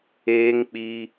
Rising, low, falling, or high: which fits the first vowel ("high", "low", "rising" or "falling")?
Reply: high